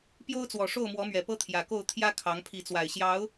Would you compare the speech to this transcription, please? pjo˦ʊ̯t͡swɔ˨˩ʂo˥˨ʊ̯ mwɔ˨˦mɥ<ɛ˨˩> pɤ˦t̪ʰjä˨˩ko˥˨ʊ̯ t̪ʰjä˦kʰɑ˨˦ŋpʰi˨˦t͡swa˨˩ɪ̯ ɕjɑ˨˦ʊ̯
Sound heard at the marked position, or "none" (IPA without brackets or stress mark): ɛ˨˩